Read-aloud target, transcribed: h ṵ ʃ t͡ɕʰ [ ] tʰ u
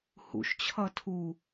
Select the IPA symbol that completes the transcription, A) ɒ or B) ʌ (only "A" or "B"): B